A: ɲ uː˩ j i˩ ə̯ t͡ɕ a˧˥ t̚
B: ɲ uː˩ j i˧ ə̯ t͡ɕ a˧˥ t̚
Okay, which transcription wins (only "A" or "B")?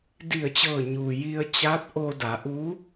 B